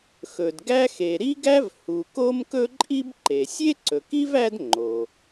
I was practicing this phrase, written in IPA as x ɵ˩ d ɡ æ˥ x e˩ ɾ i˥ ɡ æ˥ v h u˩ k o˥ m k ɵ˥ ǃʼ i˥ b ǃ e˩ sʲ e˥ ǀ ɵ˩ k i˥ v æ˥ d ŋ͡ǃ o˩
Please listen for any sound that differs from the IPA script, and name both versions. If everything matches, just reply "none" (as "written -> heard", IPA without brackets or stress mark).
none